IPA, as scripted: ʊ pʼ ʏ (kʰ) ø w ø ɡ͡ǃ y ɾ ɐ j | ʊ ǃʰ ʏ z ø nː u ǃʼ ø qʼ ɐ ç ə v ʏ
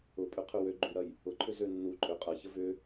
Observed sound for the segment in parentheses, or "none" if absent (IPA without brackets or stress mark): qʰ